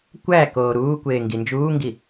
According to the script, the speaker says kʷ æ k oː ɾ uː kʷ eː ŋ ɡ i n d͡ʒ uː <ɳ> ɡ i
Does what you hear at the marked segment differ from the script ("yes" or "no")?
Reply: yes